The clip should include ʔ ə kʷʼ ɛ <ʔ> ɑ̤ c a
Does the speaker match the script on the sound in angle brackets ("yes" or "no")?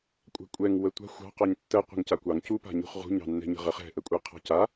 no